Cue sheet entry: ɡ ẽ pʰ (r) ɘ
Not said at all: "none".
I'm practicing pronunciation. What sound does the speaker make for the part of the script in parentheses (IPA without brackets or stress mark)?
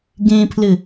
l